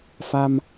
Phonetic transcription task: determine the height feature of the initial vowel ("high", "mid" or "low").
low